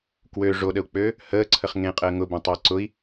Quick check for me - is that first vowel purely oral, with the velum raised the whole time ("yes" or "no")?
yes